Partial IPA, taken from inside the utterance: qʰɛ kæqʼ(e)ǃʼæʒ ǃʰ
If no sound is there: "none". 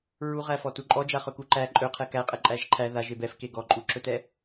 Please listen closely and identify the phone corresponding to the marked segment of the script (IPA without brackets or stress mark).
ɛ